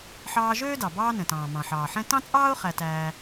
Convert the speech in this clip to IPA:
ħ ɑː˧ ʒ øː˥ d ɑ˩ b ɑː˧ n ɛ̃˩ t ɑ̃ː˩ m ɑ̃˩ ħ ɑː˩ ħ ɛ̃˥ t ɑ̃˥ t͡sʼ ɑː˥ ʊ̯ χ æ˧ t æː˧

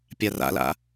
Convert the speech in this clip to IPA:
pʲ a r a̰ l a̰

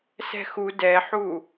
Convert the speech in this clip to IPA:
s ɛ̤ x u d ɛ ħ u

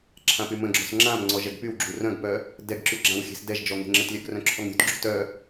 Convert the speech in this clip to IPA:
ǁʰ ã p y m ə̃ ɡ͡ǁ ɔ̤ s ŋ͡ǁ ã m ŋ͡ǀ ɔ ʒ ɛ ɡ p y w ɡ͡ǁ u r œ̃ ɡ p œ | d ɛ ɡ ǁ y ɡ͡ǁ ã w xʲ e̤ s d ɛ ʒ d͡ʒ ɔ ŋ e̤ ŋ͡ǁ ə t lʲ œ ɡ r œ̃ ǁʰ ɔ ŋ ɾʲ ṳ t ɡ͡ǁ ṳ t œ

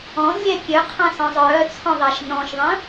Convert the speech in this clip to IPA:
ɔ̃ z lʲ ɛ kʲ ø qʰ ã s ɔ̃ zˤ œː t͡sʰ ɔ̃ ðˤ ɛ ʃ n ɔ̃ ʃ ðˤ ə̃ː

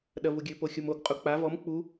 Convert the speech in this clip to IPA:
ɗ ɐ v u ɡʲ ɘ p o xʲ o m o ɡ qʼ u k͡p a v ɔ m k͡p u

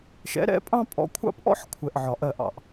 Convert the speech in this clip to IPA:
ʃ ɛ̰˨˦ ɾ ɛ̰˨˦ pʼ ɑ̃˦ pʼ ɔ̰˨ kʷʰ ɑ̰˦ p ʔ ɔ̰˦ ħ kʷʰ ɛ˨ ʔ ʕ ɒ˨ ʔ ɜ˦˨ ʔ ɑ̰˨ ʔ

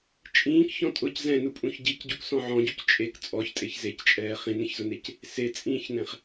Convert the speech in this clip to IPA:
t͡ʃʼ ĩː k ç ɔ̃ tʼ ʊ c z ɛ̃ n u pʼ ũ ç ɟ i c ɟ u k s ɔ̃ ʕ ɔ̃ ɟ u c t͡ʃʼ e k t͡sʼ ɔ ç tʼ e ç z e c t͡ʃʼ ɛː χ ĩ n ẽ ç z ʊ n e c | s e t͡sʼ ĩː ç n ɛ̃ χ

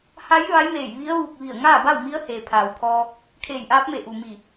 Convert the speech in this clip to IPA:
h a˧˥ j ʋ a˧˥ j m eː˧˩ j ʋ i˧˥ ə̯ ʋ u˧˩ k̚ ʋ i˧˩ ə̯ ŋ aː˥˨ b a˥˨ w m i˧˥ ə̯ h eː˩ pʰ aː˩ w pʰ ɔː˧ | kʰ eː˧˩ j ʔ aː˧˥ p̚ m e˧˩ ʔ u˩ m i˧˩

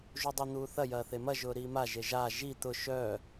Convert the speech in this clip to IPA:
ʒ u dˤ i n̪ uː θ ɐ j ɐː θ e m ɐ ʒ ʊː ɾ iː m a ʒ e ʒ a ʒ i t̪ ʊ ʃ œː

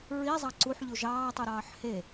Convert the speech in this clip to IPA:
ɹ i zˤ ɑ ǀ u ħ ʎ u ʒ ɑː tˤ u ɾ ɑː ħ h e

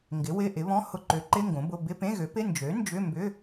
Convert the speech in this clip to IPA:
ŋ ɡ ɪ˩˥ w ɪ˧˥˧ ʔ ɪ˩˥ β ɔ̃˧˥˧ h ʊ˧˥˧ ǃ ø˩˥ ǃ ɪ˧˥˧ ŋ ɡ õ˩˥ b ʊ˧˥˧ b ɪ˧˥˧ p ẽ˧˥˧ ɣ ø˩˥ p ɪ˧˥˧ n d͡ʒ ø˩˥ n d͡ʒ ʏ˧˥˧ m b ʏ˧˥˧

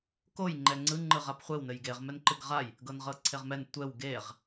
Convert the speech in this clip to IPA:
k o j ŋ͡ǃ ɛ ŋ͡ǀ ɯ ŋ͡ǃ ɯ ʁ a p χʷ e w n ɘ j ɡ e ʁ m ɛ n ǃ ɨ ɡ ʁ a j | ɡ ɤ n ʁ ɤ ǀʰ e ʁ m ɛ n tʷ ɛ w ɡ e ʁ

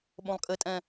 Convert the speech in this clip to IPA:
ɓ õ lˠ kʼ ɘ tʼ ɛ̃

